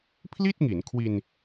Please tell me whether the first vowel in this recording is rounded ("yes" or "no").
no